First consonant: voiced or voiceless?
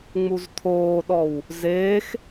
voiced